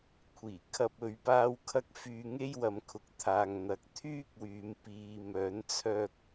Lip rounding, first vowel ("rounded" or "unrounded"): unrounded